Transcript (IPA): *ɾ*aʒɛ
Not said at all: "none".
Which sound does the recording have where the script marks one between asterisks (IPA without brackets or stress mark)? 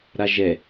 ɾ